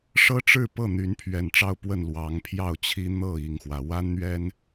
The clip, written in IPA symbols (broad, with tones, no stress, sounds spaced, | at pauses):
ʂ ɤ˦ ʈ͡ʂ ɻ̩˥˨ p ɤ˥˨ n̪ y˨˦ n pʰ ɥ ɛ˨˩ n ʈ͡ʂ ɑ˥˨ ʊ̯ p w ə˥˨ n l w ɑ˨˦ ŋ pʰ j ɑ˥˨ ʊ̯ t͡ɕʰ i˦ n̪ ɤ˥˨ i˥˨ ŋ x w ä˨˦ w a˦ n n̪ ɥ ɛ˦ n